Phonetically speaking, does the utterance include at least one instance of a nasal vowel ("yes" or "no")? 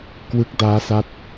no